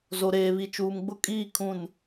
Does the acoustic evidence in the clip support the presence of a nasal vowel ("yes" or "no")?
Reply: yes